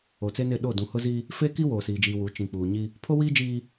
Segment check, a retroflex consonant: absent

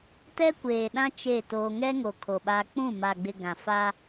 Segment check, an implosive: present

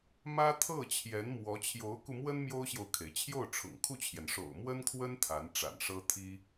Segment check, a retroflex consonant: present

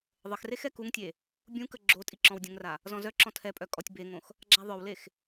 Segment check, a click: present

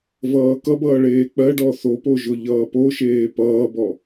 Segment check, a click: absent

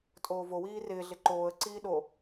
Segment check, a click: present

